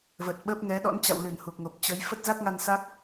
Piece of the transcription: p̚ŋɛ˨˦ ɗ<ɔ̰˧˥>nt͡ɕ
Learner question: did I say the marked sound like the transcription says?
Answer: yes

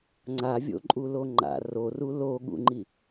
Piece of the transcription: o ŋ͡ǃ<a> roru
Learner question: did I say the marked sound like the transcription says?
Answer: no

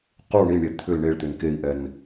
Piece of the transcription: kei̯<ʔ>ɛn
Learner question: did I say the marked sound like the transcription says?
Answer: yes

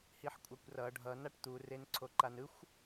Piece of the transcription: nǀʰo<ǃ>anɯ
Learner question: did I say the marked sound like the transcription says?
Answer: yes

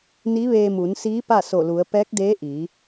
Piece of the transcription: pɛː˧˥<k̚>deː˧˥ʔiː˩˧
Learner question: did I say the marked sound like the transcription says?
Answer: yes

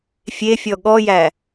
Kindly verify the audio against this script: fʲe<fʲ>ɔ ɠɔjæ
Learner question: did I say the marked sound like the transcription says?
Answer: yes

